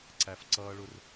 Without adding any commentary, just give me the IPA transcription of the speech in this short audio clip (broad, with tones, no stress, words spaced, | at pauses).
ǀæ˦fǀʌː˥ɭʊ˥r